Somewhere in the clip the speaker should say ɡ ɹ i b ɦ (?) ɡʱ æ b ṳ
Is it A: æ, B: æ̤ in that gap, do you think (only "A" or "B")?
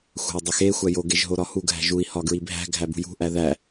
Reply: B